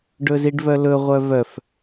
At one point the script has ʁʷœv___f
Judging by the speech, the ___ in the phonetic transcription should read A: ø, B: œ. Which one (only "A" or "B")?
B